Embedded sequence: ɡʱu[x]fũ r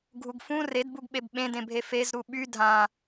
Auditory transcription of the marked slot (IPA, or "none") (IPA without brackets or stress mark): ɡ